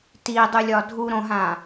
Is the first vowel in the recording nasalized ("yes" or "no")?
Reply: no